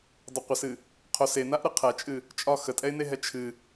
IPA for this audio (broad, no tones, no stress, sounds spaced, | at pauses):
dˤ ə qʷ ə s ɨ | qʰ o s e n a ʔ ɾ ɨ qʰ ɛ t͡ʃʼ ɨ | t͡ʃʼ ɒ x ə tʼ ɛ ɪ̯ n e ɦ ɛ t͡ʃʰ ɨ